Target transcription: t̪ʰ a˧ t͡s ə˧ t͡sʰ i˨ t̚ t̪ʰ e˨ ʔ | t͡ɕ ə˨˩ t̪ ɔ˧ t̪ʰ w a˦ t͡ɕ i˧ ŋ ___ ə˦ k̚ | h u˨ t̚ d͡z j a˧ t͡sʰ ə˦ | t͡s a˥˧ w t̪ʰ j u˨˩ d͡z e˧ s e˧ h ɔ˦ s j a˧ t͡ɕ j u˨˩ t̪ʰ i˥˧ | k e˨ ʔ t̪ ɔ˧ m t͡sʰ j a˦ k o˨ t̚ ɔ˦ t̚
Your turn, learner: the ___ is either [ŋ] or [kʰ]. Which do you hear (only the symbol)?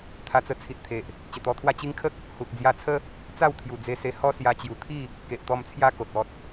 kʰ